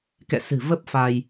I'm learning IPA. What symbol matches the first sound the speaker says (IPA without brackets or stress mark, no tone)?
k